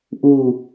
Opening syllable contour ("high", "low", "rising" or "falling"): falling